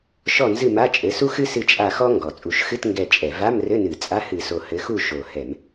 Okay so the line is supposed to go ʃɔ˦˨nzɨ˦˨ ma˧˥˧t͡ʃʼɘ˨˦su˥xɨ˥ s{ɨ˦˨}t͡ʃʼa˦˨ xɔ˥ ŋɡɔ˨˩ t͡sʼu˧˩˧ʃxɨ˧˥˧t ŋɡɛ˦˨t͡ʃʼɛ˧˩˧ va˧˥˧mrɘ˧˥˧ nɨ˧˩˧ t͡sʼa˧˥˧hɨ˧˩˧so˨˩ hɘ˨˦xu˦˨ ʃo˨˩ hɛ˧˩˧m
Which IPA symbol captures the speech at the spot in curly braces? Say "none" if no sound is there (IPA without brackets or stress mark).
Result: ɨ˦˨